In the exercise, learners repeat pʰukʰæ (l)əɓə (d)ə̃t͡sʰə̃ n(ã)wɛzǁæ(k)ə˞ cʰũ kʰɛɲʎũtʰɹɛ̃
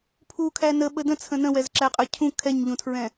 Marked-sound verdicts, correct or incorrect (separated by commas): incorrect, correct, incorrect, incorrect